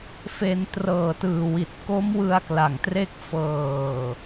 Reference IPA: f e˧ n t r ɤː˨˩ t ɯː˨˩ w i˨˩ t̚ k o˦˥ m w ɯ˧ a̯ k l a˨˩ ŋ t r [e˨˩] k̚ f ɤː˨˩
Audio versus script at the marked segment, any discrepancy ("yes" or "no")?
yes